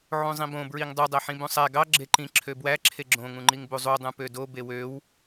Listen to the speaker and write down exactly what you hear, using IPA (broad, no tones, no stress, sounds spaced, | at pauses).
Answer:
ʕ ũ zˤ ĩ b õ b ɹ i ŋ dˤ u dˤ æ ħ ĩ b ũ sˤ æ ɡ ɑ ɡ͡ǁ e ǃ ĩ ǁʰ ø b w æ ǁʰ e ɡ͡ǁ õ ŋ ũ ŋ͡ǃ i ŋ b u zˤ u dˤ ũ p ø d o b e w ø w